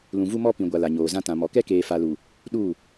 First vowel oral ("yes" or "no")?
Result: no